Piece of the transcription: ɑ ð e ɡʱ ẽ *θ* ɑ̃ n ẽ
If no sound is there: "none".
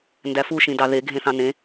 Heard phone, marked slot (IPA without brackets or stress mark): θ